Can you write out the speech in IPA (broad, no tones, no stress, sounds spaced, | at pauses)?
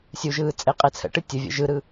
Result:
sʲ u ʒ ɯː t͡sʼ e qʼ e t͡sʰ ə̰ ʈ ɨ tʲ ʊ vʲ ə̰ ʒ ɯ ɾ ɯ